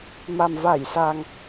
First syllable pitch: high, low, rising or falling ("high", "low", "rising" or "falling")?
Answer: low